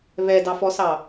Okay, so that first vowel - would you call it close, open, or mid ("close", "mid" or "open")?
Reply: mid